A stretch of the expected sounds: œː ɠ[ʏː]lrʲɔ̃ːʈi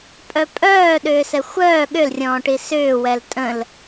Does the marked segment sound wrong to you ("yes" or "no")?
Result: yes